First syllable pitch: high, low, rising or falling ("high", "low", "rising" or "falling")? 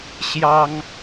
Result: high